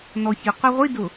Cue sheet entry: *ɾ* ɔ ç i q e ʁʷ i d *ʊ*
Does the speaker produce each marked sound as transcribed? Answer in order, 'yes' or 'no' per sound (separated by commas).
no, yes